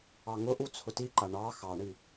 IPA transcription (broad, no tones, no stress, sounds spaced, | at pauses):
ɑ ŋ ʊ ʔ u t͡sʰ ʊ t i ǃ a ɳ ɑ x ɑ ɳ i